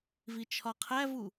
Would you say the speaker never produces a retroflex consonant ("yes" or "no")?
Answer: yes